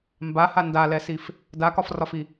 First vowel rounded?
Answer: no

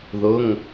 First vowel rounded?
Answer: yes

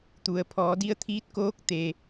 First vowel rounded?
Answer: yes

